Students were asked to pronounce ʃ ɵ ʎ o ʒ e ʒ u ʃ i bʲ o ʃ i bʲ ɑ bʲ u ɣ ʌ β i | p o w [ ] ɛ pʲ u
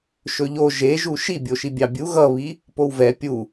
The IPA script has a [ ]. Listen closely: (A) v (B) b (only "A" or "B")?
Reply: A